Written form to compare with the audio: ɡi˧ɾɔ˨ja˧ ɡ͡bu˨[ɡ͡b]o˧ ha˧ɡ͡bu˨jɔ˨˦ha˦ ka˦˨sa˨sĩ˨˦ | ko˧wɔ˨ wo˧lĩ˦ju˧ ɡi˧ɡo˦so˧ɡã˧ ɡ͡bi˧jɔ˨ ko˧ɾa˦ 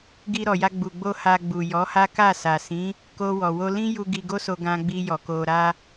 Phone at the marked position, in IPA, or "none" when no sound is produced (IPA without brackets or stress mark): ɡ͡b